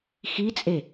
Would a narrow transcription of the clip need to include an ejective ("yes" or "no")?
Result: yes